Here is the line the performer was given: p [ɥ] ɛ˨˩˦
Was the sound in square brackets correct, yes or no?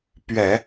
yes